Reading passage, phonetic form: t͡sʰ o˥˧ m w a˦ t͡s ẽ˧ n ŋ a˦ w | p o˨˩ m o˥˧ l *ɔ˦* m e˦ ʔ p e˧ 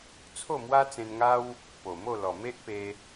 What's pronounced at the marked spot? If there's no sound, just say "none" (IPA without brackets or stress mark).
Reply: ɔ˨˩